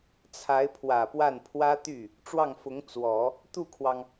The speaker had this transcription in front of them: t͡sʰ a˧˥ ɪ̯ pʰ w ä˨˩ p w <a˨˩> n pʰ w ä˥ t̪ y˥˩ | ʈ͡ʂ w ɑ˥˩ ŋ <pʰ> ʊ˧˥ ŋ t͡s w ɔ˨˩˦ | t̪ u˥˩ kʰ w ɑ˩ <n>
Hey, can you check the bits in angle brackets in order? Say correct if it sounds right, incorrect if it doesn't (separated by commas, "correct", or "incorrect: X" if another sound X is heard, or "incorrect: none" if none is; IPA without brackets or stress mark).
incorrect: a˥˩, incorrect: f, incorrect: ŋ